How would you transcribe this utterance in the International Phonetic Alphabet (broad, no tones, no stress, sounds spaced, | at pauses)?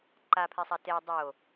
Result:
ǃ a pʰ e sˤ a t e dˤ o